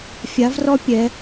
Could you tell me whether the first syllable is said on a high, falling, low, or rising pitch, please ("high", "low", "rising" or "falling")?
rising